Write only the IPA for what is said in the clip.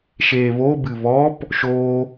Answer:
ʃeːβobɨ βɔp | ʃoː

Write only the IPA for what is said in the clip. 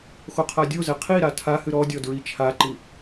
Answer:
xoqʰadʲozɛ qʰiɾa tʰahɨ ɾɔdʲɔ dɹit͡ʃʰaǃi

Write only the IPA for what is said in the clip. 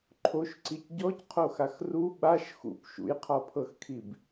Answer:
ǃʰoʃǀic ɟɔcqʰoxax ru ɓaʃ xṵp ʃṵjqʰɒpʰɤxkʰib

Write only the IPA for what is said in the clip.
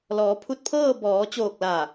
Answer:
lɔː˩˧pʰu˧t̚pʰɤː˥˨ bɔː˩˧t͡ɕoː˧˩k̚la˧˩

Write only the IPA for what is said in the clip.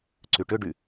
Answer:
ǀyʈʏ ɖy

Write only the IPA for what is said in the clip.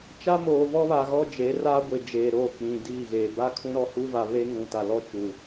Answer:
t͡ʃa˦moː˨vɔ˦βa˨ ɣɔ˦d͡ʒe˨˦ ra˦ɡʷɪ˨ d͡ʒeː˨ɾoː˦˨ k͡pĩ˨diː˦˨ɣeː˨ ba˦ kʰũ˦ɾɔ˦huː˦va˨ βe˦ŋũ˨ta˨lɔ˦ t͡ʃuː˨

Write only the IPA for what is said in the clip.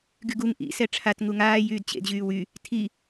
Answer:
ɡyɡuŋ ʔḭ sɛʈ͡ʂʰat ŋuŋaː jyːdt͡ɕḛd ʑyːwy | tʰi

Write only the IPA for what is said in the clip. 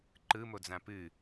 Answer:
ǃɯmod͡zã pɨ

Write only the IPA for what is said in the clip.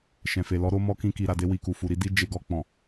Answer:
ʃɛ̃˨fe˨lɔ˨˦ ɾo˧mɔ˧ kĩ˧ki˨ɾa˨de˧ wi˨ku˨fu˨ɾi˧ di˦ d͡ʒe˧ɡɔ˧k͡pɔ̃˨

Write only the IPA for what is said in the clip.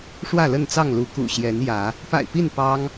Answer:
ʂwä˥˨lə˥˨nt͡sɑ˥˨ŋlu˨˦ kṵ˨˩ɕjɛ˨˦n jä˨˦ | pa̰˨˩ɪ̯pi˥˨n pɑ˦ŋ

